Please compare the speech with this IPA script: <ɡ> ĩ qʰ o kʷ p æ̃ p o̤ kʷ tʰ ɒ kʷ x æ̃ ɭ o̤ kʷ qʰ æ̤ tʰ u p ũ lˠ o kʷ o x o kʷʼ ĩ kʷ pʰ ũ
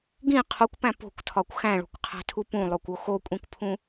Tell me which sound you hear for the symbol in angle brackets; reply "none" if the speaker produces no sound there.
ɡ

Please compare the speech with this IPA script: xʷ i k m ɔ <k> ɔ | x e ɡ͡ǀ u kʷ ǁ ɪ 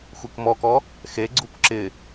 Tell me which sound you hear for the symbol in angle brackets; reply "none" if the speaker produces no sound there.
k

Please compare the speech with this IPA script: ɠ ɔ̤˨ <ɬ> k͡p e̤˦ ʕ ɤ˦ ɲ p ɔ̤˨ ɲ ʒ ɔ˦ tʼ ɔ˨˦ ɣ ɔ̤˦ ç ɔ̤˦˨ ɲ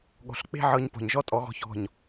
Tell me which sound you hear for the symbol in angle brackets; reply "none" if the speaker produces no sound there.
ɬ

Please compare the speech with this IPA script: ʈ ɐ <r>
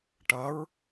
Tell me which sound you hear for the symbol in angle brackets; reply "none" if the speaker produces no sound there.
ɹ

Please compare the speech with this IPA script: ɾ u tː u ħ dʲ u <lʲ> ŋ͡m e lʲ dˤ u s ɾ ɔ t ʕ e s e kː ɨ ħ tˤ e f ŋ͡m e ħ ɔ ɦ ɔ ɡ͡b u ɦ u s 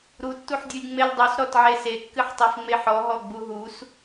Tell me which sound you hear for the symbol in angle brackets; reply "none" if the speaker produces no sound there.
lʲ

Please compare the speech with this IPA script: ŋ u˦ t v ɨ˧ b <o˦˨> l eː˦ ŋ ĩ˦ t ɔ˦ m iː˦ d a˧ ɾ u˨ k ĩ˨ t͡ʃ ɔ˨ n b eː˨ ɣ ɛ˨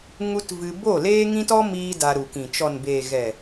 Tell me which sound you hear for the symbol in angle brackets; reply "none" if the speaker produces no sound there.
o˦˨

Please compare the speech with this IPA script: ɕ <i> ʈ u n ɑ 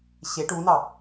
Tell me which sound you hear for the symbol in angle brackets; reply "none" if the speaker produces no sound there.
e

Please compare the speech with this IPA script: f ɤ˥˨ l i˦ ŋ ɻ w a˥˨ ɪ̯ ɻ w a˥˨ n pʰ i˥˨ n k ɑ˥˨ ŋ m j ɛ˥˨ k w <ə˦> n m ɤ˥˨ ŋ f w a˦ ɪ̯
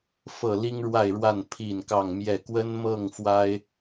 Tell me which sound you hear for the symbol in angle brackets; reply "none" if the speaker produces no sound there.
ə˦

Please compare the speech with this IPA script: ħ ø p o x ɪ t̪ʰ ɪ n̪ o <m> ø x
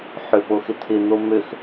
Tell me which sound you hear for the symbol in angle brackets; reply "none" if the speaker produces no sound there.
m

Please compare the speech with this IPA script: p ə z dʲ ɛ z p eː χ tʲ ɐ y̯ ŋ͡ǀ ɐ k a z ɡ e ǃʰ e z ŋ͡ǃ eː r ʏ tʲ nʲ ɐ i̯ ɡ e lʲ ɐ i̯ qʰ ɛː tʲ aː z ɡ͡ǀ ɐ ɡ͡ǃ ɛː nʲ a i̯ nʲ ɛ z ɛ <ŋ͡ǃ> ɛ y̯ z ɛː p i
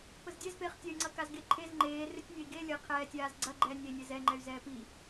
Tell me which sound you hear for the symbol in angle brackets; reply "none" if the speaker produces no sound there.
ŋ͡ǃ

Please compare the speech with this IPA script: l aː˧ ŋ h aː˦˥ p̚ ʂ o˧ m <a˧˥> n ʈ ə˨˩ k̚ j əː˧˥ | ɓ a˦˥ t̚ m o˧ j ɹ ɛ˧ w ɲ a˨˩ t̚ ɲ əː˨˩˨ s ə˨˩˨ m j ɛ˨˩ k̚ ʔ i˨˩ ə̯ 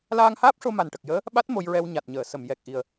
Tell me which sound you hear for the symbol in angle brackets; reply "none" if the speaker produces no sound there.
a˨˩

